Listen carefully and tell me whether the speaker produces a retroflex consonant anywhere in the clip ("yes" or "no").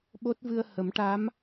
yes